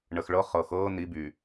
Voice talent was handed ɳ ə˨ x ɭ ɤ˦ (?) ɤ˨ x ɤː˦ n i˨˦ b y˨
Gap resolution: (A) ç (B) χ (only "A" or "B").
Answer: B